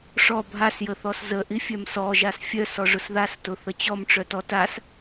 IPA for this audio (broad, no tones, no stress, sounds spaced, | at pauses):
ʂ ɔ bʱ a s j ə θ ɔ s z ə ʔ i fʲ œ m s ɔ ʒ a s fʲ œ s ɔ ʐ ʊ s ð a s t ʊ θ ə t͡ɕ ɔ m ʈ͡ʂ œ t ɔ t a s